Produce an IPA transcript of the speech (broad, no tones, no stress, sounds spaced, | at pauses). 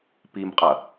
p i m qʼ ɐ